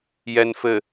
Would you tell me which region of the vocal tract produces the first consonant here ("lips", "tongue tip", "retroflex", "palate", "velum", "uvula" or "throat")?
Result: palate